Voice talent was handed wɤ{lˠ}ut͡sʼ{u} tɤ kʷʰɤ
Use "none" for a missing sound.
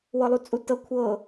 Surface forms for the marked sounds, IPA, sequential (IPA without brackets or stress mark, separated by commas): lˠ, u